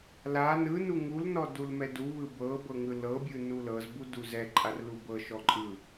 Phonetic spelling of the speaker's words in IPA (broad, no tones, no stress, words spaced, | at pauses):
la nɯnu ŋulnɔ dulmɛduβɯ bɤ bɤŋɯlɤbʲɯ nulɤzbu duzɛǃʼar lubɤʃɔ ǃʼɯ